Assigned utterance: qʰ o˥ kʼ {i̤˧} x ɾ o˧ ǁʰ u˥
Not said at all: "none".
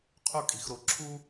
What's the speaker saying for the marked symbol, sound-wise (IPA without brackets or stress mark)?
i̤˧